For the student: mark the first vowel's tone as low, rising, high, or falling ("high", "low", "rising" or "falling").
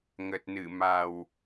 low